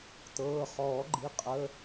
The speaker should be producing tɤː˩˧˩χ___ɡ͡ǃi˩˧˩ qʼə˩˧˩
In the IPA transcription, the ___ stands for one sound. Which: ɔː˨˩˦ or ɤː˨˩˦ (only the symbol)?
ɔː˨˩˦